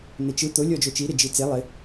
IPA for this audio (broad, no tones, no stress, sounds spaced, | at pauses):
n̪ e t͡ʃ ɯ t̪ o lʲ ɔ d͡ʒ o t͡ʃ i ɾ ɪ d͡ʒ i t͡s e lˠ ɪ